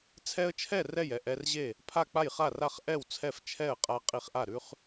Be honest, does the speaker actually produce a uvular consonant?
yes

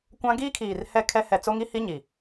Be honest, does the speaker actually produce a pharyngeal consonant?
no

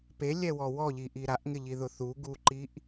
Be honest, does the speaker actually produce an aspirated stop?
no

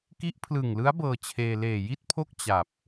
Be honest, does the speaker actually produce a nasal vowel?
no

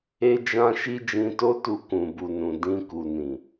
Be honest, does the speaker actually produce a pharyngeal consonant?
no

